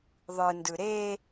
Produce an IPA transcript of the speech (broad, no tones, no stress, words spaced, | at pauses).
ðˤɯndɯ ɾe